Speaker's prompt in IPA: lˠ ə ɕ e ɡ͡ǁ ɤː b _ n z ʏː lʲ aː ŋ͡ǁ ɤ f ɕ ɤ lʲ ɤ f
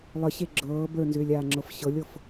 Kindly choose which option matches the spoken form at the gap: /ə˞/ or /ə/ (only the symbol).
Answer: ə˞